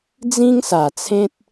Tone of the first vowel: high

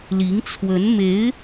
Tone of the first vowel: rising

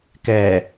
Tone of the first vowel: low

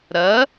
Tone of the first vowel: rising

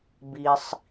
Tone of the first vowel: low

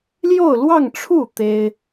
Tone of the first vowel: falling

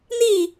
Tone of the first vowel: falling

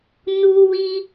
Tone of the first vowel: high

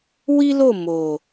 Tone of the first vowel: high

